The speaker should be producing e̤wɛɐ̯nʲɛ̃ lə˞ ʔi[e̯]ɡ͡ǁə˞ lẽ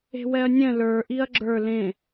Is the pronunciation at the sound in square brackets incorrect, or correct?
incorrect